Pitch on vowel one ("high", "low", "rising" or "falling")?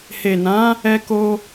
low